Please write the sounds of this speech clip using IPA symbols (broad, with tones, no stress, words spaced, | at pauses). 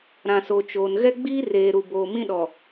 ɾã˨so˨t͡ʃoː˨n ɣɛ˦ɡ͡biː˦ reː˨ɾu˨boː˨ mĩ˦ɗɔ˨